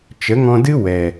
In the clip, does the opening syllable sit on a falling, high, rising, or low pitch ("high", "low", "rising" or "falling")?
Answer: rising